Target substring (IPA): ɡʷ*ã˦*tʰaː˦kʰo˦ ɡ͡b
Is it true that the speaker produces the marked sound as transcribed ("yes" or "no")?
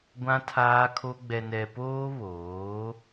yes